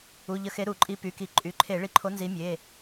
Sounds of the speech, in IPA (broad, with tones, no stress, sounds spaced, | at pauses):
u˩˧˩ ʎ ə˧˩˧ x e˨˦ ɾ u˧˩˧ ǃʼ i˨˦ p y˩˧˩ k i˧˩˧ ǃʼ y˩˧˩ ǃʰ e˧˩˧ ɭ i˨˦ ǃʰ o˨˦ n z i˨˦ mʲ e˩˧˩